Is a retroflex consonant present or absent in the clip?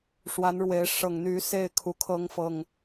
present